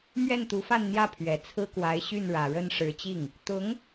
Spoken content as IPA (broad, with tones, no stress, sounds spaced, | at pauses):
m ɥ ɛ˥˩ n t̪ u˧˥ f a˥˧ n n̪ j ä˥˩ pʰ ɥ ɛ˨˩ t͡sʰ ɹ̩˥ k w a˧˥ ɪ̯ ɕ y˥˩ n ɻ ä˨˩ ɻ ə˥˩ n ʂ ɻ̩˧˥ t͡ɕ i˥˩ ŋ | t̪ ʊ˧˥ ŋ